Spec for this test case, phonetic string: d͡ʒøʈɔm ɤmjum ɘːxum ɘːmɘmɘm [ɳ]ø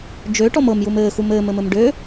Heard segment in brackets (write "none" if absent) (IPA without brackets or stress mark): ɖ